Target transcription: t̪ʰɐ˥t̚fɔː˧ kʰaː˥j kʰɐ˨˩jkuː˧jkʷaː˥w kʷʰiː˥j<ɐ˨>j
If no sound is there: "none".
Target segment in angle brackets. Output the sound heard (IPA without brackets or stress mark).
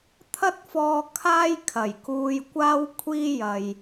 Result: ɐ˨